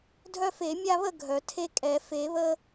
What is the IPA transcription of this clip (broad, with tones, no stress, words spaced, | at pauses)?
dʱœ˦fe˨˩˦ mʲa˦βə˥˨ ɡʱœ˩ tʰe˦kʼɛ˨˩˦ fe˨˩˦βə˦